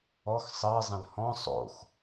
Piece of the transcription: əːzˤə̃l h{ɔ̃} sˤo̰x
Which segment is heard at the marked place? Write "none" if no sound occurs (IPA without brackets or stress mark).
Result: ɔ̃